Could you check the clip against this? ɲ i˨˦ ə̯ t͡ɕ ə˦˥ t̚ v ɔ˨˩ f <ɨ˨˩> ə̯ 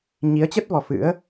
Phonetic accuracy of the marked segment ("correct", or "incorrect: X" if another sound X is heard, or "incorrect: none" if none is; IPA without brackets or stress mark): incorrect: ɨ̰˧˥